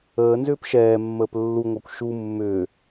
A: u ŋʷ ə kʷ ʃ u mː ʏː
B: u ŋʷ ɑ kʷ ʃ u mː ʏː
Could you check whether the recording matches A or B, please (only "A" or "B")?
B